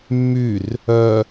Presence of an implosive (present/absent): absent